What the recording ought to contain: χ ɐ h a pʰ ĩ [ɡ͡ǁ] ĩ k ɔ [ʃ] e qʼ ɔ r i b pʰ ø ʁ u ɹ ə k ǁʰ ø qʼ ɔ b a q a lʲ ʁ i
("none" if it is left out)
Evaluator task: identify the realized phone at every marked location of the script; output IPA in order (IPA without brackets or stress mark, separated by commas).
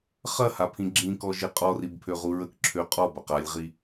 ɡ͡ǁ, ʒ